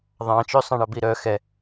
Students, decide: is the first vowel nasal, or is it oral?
nasal